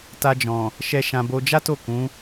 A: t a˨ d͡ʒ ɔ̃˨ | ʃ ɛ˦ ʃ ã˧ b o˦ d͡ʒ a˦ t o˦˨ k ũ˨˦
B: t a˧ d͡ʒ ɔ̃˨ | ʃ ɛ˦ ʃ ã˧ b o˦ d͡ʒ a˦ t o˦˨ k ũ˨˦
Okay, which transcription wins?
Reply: B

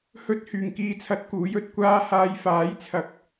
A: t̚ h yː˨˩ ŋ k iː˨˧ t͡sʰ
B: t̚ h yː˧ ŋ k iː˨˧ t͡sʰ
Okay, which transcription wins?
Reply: A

